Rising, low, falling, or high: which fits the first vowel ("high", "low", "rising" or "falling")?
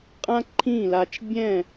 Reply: high